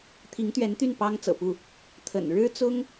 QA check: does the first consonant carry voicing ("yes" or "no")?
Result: no